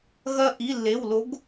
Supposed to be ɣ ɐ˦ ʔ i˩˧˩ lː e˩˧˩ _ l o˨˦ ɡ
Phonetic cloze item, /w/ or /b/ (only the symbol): w